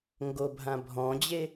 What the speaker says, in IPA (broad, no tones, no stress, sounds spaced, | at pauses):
ŋ ɡ o bʱ ã bʱ ɔ̃ d͡ʑ e